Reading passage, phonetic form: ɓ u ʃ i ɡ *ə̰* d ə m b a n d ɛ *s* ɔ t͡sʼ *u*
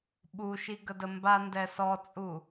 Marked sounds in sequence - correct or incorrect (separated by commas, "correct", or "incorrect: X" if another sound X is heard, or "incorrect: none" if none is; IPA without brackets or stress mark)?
incorrect: ə, correct, correct